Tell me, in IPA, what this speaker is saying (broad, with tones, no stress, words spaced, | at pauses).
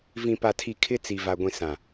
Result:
vĩ˨pa˨tʰi˨ kʰɪ˦t͡si˨va˨ ɡʷĩ˨sã˨